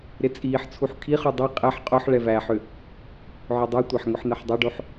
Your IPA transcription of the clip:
ɾ ɪ t͡sʼ iː ħ t͡sʰ u ħ kʰ i χ u dˤ i qʼ ɛ ħ qʼ o ħ ɭ ɛ v æ ħ ʏ | ʕ ʏ dˤ u tʷ æ ħ ŋ ʊ ħ n̪ ɛ ħ dˤ o ɖ o ħ

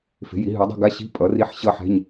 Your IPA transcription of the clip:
f e̤˩˥ j i˩˥ ɦ ʉ˩˥ dˤ e̤˥˧ ɡ a˧˥˧ ɕ i̤˧˥˧ pʼ ʌ˩˥ r i˧˥˧ ħ ɕ ʌ˥˧ ħ ɛ̤˧˥˧ ɲ

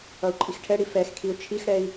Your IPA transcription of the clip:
ʌ u̯ ǃʼ i x ʈʰ ɛ ɽ i f ɛ x kʰ i u̯ t͡ʃʰ i x ɽ ɛ i̯

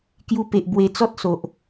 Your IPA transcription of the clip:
k j u˧ p e˨ ʔ b w e˧ t͡s ɔ˦ t̚ s o˨ ʔ

